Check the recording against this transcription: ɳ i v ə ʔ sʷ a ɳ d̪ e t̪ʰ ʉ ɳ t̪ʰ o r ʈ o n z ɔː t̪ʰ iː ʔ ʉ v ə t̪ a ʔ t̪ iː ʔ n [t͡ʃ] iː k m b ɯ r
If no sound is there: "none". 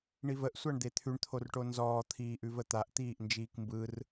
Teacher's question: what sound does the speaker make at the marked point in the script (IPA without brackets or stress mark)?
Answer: d͡ʒ